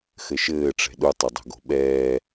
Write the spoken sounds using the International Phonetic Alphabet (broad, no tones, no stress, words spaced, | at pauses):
xɘʃɘːʈ͡ʂɛ̤ ɗutˤodˤo̤ɡo̤ ɓɛː